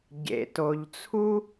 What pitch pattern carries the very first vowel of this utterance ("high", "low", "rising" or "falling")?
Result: low